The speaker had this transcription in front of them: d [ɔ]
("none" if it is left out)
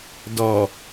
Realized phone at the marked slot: ɔ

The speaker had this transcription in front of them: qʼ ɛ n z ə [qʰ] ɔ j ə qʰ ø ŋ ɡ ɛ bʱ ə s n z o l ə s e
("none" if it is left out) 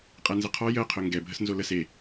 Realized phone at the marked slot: qʰ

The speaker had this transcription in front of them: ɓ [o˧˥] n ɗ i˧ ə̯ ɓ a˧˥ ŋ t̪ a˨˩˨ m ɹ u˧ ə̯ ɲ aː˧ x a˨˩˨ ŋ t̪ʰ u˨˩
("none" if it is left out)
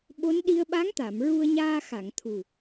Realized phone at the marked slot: o˧˥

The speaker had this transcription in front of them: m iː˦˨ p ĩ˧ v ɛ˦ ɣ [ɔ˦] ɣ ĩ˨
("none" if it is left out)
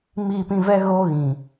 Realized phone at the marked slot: o˦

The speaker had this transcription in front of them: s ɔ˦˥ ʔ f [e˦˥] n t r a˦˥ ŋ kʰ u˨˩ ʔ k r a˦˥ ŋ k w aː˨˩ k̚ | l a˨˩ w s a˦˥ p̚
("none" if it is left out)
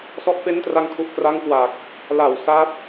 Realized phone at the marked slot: e˦˥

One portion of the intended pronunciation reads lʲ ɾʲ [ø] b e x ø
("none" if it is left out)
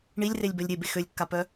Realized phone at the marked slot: e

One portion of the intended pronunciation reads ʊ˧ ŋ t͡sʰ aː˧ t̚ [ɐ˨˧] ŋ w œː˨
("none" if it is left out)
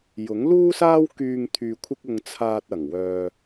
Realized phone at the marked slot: ɐ˨˩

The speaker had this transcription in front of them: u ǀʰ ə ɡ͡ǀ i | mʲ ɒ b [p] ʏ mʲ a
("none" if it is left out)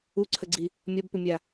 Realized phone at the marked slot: p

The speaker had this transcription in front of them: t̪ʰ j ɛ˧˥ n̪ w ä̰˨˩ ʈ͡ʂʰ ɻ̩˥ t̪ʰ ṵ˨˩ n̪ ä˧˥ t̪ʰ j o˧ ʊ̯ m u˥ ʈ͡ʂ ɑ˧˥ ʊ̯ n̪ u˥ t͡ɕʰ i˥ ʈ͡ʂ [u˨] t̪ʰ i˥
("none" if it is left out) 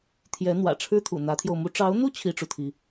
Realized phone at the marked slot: u˨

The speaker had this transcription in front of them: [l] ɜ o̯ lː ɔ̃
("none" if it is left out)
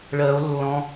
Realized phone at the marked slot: ɭ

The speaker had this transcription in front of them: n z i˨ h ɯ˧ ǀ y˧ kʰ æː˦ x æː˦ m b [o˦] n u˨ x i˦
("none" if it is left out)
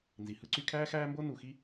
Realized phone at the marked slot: o˦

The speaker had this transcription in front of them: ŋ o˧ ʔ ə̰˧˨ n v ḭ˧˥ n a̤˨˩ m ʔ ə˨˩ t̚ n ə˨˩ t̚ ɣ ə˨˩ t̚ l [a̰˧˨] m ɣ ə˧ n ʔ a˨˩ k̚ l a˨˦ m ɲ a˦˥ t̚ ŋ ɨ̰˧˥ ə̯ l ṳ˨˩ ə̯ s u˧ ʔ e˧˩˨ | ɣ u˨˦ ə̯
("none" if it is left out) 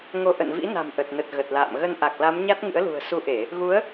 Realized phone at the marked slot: a̰ː˧˨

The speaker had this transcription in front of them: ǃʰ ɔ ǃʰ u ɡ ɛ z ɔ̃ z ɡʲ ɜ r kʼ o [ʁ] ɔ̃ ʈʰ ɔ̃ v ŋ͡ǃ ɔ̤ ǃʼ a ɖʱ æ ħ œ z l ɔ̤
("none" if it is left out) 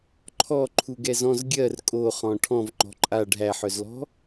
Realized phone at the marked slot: χ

